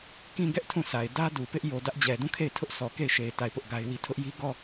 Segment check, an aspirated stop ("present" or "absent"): present